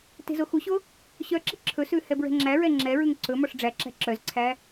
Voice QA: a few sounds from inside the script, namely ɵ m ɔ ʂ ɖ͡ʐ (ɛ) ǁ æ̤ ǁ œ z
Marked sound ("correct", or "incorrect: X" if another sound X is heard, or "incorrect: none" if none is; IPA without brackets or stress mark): incorrect: æ